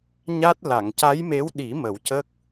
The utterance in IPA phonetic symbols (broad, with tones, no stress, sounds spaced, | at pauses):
ɲ a˦˥ t̚ l a˨˩˨ ŋ c a˧˥ j m e˧˥ w ɗ i˨˩˦ m ə˨˩˦ w c ə˦˥ k̚